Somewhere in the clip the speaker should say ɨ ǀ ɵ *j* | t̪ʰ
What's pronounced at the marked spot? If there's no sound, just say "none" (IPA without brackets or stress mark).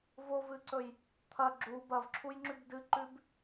j